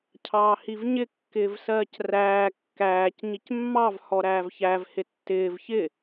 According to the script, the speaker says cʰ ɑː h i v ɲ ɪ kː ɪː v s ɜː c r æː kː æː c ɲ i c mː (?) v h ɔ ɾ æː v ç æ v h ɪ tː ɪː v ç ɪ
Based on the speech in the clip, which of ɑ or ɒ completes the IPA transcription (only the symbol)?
ɑ